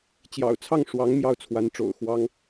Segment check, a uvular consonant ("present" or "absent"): absent